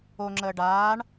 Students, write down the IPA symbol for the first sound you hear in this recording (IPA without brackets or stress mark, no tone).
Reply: o